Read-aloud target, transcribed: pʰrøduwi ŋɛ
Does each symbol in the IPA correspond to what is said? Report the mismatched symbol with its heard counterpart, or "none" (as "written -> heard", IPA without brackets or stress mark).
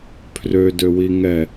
u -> ø